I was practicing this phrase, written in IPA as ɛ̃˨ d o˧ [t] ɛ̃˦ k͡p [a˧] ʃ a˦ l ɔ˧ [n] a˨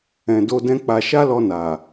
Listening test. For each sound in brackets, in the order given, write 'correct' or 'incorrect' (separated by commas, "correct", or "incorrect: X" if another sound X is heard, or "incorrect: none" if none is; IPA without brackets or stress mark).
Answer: incorrect: d, correct, correct